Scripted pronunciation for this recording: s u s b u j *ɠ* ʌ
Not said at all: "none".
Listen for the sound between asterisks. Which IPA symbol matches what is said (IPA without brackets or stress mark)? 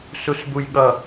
ɠ